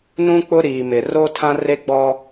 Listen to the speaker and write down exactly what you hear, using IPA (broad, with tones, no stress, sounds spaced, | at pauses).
n ũ˦ k͡p ʊ˦ ɾ iː˨ m ɪ˨ r o˦ tʰ ã˦ r e˦ ɡ͡b ɔ˦